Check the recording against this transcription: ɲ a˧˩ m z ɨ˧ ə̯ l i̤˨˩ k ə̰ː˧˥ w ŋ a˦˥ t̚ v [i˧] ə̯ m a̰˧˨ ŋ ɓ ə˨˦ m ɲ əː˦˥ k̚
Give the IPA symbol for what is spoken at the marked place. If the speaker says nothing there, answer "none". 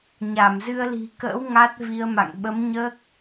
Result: i˧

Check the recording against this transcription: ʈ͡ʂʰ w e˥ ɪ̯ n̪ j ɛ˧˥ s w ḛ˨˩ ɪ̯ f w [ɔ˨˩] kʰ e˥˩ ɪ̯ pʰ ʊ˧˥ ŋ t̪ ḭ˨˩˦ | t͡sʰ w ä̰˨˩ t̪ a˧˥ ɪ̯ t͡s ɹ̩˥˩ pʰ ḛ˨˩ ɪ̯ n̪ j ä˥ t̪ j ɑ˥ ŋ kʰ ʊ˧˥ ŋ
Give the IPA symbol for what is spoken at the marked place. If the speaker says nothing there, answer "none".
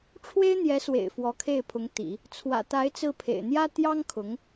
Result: ɔ˧˥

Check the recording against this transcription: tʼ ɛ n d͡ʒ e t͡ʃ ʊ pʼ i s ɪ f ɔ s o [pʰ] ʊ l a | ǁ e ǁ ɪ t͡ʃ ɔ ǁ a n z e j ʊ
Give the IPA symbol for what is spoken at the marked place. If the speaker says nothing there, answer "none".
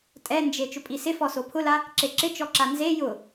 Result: pʰ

